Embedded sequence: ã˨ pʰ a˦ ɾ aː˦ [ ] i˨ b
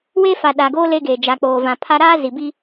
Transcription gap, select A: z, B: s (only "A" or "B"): A